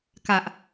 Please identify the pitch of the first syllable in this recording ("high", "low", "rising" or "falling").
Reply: low